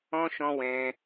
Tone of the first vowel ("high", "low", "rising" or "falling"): high